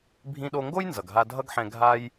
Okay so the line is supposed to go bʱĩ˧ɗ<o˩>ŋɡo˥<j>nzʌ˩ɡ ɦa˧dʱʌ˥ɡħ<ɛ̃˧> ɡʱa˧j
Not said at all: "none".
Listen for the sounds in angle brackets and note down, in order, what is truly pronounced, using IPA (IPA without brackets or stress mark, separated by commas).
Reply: o˧, j, ɛ̃˧